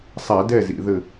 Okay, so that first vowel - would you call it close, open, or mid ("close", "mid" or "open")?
open